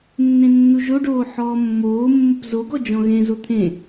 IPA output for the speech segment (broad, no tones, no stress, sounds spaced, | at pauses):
nː ẽ nː u ʒ o ɖ oː ħ ɔː mː oː mː ə p z o ɡ ɔ d͡ʒ ɔ̃ ɣ ẽ z o t̪ʰ ẽ